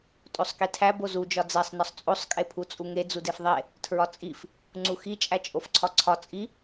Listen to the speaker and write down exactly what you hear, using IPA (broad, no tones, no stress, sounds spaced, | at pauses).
tʼ o sˤ k i tʰ æ b o z u d͡ʒ ɒ d͡z e sˤ n ɒ sˤ t͡sʼ o sˤ kʼ e pʰ u t͡sʼ u ŋ e d͡z u d e f ðˤ e | tʰ ɹ ɒ t͡sʼ i f | ŋ͡ǀ u x i t͡ʃʼ æ t͡ʃʼ o f ǀʰ ɒ ǀʰ ɒ t͡sʼ i